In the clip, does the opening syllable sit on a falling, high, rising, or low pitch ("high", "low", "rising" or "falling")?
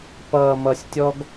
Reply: low